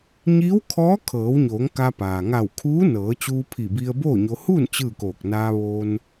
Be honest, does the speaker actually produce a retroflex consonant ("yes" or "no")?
no